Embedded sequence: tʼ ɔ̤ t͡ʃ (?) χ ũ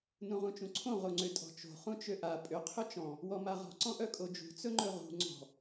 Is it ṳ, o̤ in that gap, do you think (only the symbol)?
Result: o̤